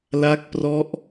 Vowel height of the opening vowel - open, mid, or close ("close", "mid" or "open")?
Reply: open